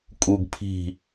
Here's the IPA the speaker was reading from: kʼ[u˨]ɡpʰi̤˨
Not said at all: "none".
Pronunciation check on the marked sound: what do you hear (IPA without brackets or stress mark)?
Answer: u˨